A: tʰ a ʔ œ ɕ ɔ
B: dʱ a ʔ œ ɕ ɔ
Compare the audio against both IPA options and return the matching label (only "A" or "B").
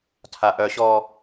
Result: A